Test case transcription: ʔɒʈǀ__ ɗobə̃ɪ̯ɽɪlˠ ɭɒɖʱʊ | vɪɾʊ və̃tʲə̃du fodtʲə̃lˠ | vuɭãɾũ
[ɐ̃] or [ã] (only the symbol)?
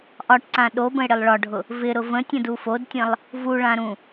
ã